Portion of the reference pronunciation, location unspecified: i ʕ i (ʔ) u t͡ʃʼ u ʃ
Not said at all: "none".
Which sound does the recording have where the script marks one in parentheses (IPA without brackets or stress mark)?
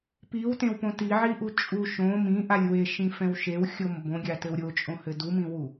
ʔ